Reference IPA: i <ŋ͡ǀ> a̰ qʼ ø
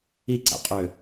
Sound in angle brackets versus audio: incorrect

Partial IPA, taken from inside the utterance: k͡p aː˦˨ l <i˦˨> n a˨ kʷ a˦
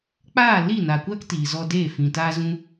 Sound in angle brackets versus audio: correct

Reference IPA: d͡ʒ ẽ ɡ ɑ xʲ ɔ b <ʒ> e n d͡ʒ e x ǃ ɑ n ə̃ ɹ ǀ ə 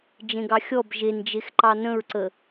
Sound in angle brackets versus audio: correct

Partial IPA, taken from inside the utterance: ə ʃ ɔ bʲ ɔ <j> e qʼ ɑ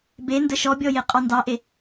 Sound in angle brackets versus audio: correct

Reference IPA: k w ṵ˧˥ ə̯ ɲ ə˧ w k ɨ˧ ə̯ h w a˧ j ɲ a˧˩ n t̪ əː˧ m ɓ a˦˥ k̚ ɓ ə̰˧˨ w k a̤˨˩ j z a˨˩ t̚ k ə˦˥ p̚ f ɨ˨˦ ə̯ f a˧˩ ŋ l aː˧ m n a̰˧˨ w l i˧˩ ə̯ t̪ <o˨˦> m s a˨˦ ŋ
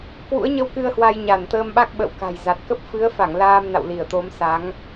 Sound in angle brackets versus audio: correct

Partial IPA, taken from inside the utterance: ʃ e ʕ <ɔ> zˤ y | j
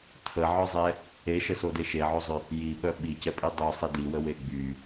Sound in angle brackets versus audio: incorrect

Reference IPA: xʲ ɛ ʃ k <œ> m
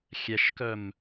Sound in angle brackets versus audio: correct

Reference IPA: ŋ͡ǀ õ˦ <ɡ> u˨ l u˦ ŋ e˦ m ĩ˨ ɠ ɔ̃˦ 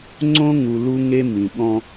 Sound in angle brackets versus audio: incorrect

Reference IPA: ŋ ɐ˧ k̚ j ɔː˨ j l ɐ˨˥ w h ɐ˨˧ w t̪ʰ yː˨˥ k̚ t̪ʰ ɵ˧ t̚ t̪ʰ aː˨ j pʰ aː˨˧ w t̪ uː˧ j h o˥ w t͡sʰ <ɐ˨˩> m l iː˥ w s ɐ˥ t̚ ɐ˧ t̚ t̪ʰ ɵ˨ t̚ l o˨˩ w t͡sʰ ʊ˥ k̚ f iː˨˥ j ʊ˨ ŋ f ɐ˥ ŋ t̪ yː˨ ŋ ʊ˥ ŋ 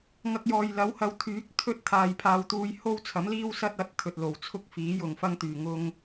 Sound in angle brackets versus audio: incorrect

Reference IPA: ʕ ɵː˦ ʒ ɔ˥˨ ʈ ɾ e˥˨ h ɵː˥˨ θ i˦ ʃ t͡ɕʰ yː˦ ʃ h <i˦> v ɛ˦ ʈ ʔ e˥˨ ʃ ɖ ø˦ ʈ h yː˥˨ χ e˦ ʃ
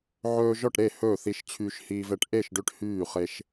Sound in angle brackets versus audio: incorrect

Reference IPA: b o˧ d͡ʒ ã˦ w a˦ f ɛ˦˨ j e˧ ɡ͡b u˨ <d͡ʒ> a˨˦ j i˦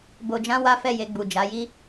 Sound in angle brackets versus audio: correct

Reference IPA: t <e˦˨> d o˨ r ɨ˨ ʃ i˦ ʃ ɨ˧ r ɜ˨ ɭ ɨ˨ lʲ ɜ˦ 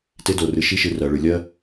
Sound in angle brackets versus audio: incorrect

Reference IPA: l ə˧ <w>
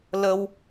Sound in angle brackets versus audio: correct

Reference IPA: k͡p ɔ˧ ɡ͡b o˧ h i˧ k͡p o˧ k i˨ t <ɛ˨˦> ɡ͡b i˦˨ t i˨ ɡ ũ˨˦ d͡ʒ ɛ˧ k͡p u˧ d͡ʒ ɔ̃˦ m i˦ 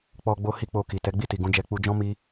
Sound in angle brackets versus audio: correct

